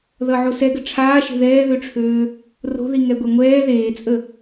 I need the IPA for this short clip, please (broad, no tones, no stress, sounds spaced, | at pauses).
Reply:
ð ʌ ʕ o s ɛ ɡ ə ʈ͡ʂʰ aː ʃ e̤ ð ɛː ð ø ʈ͡ʂʰ øː | r o̤ ð i ŋ ɛ ɡʷ ɛ ŋʷ ɛː ð eː t͡sʼ ə